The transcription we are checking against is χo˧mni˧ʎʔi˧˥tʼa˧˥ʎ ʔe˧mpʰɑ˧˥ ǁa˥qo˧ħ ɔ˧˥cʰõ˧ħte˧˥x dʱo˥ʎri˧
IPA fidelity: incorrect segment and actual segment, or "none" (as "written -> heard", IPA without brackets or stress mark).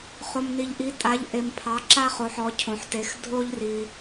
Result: q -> χ